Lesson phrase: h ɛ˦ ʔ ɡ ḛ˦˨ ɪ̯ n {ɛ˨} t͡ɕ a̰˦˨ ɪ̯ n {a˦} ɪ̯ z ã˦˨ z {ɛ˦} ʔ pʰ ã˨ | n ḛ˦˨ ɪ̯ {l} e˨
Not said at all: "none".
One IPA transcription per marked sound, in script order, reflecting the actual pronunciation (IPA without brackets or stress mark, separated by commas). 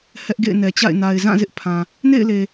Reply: ɛ˨, a˨, ɪ˦, l